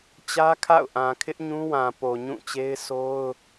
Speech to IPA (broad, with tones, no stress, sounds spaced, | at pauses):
t͡ɕ ä˦ kʰ a̰˦˨ ʊ̯ ʔ ã˨ kʰ ɪ˦ ʔ ɲ ũ˦ w ã˨ p o˨ ɲ ũ˦˨ t͡ɕ e˦ ɪ̯ s o˦ ʊ̯